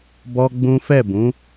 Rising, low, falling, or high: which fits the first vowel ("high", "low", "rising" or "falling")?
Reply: high